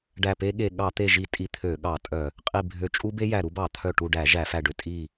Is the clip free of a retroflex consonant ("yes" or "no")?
no